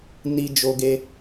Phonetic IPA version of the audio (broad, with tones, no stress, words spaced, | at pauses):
ni˧ d͡ʒo˧ɡe˧